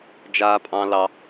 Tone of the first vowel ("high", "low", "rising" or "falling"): high